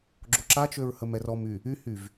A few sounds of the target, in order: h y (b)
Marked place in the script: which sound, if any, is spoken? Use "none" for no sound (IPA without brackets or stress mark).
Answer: v